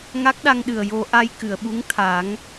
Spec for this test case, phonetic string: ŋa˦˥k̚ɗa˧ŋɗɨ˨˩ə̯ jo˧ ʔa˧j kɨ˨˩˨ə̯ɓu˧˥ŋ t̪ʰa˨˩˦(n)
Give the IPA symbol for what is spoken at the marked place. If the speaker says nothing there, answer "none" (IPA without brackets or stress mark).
ŋ